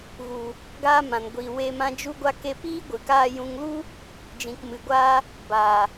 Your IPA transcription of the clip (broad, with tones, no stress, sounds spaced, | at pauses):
ɣ u˨ | ɡ aː˧ m ã˨ n ɡʷ iː˨ w eː˧ m ã˧ d͡ʒ u˧ ɡʷ a˧ k e˧ p iː˦ ɡʷ ɨ˨ k aː˧ j ũ˧ ŋ l u˦ | d͡ʒ ĩ˨ k m ɨ˨ ɡʷ a˧ | b aː˨